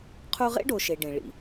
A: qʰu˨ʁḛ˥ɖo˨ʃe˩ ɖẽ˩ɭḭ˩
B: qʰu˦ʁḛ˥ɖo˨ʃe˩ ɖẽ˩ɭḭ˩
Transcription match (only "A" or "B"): B